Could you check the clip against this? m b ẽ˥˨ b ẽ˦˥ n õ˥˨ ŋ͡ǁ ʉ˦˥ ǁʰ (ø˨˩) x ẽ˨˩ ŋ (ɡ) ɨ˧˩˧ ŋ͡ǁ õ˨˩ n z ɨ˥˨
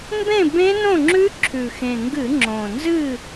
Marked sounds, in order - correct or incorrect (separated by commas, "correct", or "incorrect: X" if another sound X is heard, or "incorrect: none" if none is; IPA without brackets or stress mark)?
incorrect: ʉ˨˩, correct